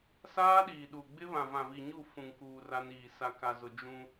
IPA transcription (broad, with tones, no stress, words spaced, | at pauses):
saː˦ɗiː˨ɗu˨ɡ͡bɪ˦ βã˨vã˨vi˨ɲu˦˨ fũ˨ŋkuː˨ ra˦niː˨ sa˨ka˨zʊ˨ d͡ʒũ˦